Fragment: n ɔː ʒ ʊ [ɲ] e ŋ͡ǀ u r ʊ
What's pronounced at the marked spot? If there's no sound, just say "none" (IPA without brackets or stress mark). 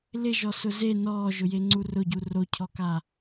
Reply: j